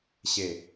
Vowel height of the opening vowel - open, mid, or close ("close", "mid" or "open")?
mid